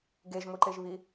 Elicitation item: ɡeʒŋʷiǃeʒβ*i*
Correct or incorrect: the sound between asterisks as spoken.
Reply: correct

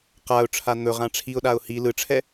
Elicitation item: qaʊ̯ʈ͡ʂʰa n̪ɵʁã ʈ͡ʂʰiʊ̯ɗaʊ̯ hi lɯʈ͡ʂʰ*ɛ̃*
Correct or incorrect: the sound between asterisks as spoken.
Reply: incorrect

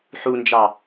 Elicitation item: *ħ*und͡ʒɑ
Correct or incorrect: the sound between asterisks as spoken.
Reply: correct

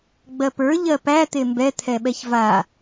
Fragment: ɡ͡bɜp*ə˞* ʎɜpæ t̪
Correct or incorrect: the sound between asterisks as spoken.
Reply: correct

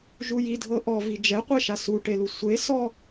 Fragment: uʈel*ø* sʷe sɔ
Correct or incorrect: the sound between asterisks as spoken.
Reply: incorrect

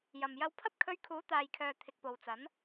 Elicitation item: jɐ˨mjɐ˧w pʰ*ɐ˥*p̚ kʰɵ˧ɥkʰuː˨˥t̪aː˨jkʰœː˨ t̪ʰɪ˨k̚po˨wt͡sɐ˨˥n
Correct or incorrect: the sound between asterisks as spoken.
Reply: correct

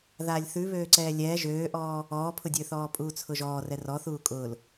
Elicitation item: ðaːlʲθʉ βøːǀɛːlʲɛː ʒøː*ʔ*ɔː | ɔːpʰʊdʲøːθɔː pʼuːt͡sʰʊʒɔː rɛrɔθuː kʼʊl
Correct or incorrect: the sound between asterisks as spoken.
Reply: correct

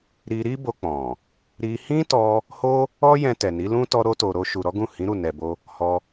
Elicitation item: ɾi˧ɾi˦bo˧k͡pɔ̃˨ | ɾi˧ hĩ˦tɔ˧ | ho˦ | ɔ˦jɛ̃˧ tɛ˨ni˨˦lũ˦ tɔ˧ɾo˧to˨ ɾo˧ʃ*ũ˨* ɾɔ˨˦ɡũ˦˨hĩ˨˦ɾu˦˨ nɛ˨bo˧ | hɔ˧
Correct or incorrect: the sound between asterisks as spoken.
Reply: incorrect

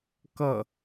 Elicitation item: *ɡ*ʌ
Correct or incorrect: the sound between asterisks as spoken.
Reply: incorrect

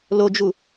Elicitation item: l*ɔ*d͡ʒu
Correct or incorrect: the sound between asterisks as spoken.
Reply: incorrect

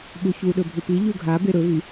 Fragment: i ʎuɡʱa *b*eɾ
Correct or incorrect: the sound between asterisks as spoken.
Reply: correct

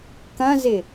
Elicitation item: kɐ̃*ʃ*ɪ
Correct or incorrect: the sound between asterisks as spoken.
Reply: incorrect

